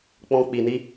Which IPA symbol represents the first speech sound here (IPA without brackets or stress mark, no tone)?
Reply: k͡p